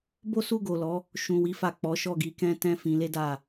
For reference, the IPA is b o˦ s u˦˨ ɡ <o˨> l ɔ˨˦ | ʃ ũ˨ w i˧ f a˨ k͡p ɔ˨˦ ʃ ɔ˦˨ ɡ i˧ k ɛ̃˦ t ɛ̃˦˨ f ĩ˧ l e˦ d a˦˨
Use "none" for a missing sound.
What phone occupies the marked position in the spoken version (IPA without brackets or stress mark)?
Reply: o˨